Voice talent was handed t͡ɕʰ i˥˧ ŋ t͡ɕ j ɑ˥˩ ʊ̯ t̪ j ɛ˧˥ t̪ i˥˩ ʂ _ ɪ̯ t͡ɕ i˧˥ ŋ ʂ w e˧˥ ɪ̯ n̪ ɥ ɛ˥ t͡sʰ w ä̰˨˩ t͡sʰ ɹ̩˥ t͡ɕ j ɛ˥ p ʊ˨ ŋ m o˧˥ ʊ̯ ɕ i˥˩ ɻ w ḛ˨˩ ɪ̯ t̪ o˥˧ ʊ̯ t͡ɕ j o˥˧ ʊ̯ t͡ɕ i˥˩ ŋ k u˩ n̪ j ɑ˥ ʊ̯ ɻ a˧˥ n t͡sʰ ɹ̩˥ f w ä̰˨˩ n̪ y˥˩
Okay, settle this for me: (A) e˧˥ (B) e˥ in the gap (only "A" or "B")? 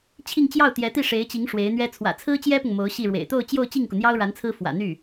A